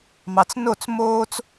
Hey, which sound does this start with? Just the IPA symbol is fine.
m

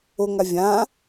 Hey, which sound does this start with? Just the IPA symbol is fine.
o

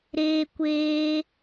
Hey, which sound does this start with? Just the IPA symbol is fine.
ɾ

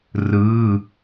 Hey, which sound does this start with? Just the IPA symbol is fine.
r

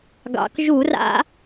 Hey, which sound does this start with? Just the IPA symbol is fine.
ɡ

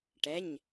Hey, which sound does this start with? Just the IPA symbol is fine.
ʈ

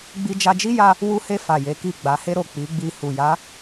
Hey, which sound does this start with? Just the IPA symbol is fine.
ɡ͡b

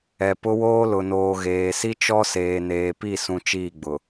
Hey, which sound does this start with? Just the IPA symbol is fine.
ɛ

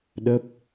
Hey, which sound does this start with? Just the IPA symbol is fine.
ɗ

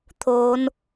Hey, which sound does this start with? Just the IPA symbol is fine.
t̪ʰ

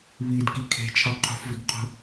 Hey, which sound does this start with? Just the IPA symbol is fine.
β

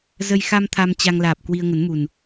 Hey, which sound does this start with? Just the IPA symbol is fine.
z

